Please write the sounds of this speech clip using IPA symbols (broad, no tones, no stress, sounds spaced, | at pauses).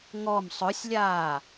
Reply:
ŋ ɔ m sˤ ɵ sʲ lʲ aː